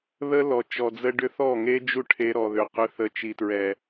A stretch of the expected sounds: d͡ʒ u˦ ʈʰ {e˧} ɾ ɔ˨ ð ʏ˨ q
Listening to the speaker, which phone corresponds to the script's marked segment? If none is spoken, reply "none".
e˧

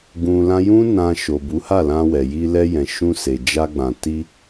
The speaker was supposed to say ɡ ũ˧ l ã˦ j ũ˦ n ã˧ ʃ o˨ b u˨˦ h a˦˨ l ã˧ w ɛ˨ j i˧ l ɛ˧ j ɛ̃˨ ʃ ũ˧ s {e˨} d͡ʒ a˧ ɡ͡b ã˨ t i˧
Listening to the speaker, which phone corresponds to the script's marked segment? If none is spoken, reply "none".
e˨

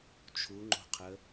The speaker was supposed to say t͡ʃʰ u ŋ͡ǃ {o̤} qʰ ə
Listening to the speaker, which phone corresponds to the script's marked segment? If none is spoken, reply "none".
o̤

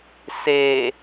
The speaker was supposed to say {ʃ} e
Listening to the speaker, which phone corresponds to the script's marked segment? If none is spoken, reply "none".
s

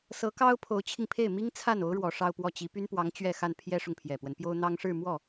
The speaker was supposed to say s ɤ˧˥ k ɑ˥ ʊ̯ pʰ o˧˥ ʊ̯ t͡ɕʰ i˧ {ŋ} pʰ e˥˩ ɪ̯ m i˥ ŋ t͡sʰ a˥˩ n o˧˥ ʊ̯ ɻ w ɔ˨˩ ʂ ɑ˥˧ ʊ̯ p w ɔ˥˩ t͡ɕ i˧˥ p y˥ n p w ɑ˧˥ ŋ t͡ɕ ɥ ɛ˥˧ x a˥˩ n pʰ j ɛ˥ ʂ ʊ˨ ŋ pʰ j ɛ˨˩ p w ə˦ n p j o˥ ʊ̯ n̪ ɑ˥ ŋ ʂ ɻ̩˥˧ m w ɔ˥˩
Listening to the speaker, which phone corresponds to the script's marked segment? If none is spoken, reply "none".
ŋ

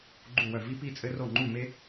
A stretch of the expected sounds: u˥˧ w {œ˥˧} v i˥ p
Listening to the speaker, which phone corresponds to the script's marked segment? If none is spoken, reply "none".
œ˥˧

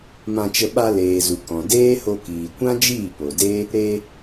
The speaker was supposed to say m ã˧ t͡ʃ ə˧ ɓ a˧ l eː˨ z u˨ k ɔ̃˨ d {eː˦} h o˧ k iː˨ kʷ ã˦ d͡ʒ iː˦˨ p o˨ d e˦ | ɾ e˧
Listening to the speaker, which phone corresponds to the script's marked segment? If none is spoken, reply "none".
eː˦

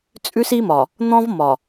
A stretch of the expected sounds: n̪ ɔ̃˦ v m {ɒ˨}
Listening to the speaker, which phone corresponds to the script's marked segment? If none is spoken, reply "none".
ɒ˨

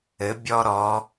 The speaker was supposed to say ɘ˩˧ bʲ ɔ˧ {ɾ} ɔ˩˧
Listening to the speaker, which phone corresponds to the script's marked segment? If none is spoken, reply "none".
ɾ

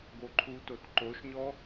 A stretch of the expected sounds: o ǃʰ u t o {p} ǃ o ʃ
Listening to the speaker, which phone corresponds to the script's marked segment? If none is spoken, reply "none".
t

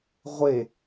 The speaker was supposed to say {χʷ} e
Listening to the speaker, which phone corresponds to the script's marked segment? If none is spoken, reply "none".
ʁʷ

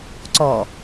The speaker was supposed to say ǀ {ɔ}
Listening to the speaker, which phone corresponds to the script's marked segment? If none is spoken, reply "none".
ɔ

